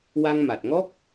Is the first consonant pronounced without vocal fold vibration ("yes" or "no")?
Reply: no